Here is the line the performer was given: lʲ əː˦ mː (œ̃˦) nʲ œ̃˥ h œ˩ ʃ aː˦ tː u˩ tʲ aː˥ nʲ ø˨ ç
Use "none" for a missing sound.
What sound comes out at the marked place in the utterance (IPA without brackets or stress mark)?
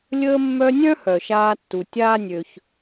œ˦